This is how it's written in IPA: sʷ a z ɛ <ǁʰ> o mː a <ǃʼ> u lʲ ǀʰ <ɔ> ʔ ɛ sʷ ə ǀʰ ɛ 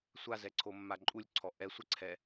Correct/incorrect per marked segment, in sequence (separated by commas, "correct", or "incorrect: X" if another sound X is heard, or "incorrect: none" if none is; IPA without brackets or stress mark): incorrect: ǀʰ, correct, correct